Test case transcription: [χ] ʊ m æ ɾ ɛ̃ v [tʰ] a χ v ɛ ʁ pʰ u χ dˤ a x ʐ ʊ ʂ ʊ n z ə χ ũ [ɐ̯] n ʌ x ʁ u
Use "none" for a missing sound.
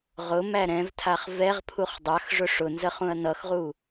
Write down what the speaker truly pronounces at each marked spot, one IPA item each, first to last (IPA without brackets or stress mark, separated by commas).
ʁ, tʰ, ɐ̯